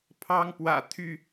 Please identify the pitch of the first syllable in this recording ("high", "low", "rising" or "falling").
high